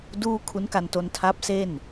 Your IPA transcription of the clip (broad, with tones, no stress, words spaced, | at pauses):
duː˥˩ kʰu˦˥nka˧nto˧n tʰa˦˥p̚se˥˩n